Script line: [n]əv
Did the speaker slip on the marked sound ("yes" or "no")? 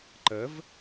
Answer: yes